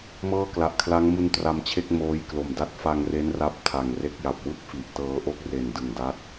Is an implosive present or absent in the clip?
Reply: absent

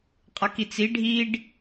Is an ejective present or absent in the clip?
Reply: present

